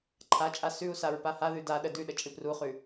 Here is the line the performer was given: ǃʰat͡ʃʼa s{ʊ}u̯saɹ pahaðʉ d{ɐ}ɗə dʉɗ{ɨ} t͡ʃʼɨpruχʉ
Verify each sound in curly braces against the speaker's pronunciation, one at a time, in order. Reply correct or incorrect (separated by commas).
incorrect, incorrect, incorrect